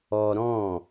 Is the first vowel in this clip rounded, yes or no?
yes